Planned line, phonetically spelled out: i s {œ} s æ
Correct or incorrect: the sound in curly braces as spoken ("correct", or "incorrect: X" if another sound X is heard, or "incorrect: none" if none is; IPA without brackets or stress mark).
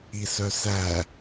correct